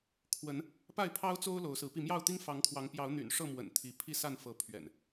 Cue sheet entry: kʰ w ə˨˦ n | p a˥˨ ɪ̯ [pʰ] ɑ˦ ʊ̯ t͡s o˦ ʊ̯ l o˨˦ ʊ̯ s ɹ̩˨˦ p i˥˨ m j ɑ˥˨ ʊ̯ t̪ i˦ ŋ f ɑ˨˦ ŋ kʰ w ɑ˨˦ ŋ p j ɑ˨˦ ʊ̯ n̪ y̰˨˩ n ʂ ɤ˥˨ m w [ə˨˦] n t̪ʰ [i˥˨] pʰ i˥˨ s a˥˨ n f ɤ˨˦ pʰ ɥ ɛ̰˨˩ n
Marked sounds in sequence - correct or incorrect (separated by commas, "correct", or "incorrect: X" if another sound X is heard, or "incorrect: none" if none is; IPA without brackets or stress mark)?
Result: correct, incorrect: ə̰˨˩, incorrect: i˨˦